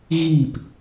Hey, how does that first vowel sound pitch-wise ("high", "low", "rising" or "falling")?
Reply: falling